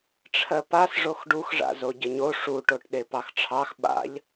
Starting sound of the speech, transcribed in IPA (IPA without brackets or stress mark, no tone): ʈ͡ʂʰ